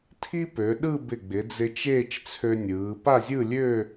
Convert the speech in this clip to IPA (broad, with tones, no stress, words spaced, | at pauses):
tʰi˥pø˩˧ ɗɯ˥˧bɪ˧˩ɡ͡bɪ˩˧ d͡zɪ˧t͡ʃeː˥˧t͡ʃt͡sʰø˧nʲɯː˩˧ pa˥˧zʲɯ˥˧lʲø˥˧